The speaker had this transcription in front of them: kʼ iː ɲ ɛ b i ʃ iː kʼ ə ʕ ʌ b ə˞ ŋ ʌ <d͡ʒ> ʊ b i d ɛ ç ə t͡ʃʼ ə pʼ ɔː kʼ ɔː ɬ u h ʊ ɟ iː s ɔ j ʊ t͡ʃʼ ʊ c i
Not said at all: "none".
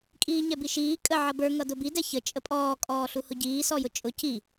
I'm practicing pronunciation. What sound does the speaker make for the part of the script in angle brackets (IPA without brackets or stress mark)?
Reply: d